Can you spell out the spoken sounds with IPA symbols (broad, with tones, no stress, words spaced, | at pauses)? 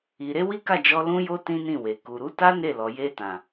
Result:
i˨ɾe˧ wi˦ka˦˨d͡ʒɔ˧ lũ˦jo˦ tĩ˦nĩ˦˨we˨ ku˨ɾu˨˦ta˦ ne˦˨lɔ˨je˧tã˨